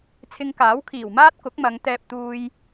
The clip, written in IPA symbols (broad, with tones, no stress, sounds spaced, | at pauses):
t͡sʰ ɪ˧ ŋ k aː˨˥ w kʰ iː˨˩ w m aː˥ t̚ k ʊ˨˥ k̚ m ɐ˨˧ ŋ t̪ ɛː˧ p̚ t̪ uː˧ j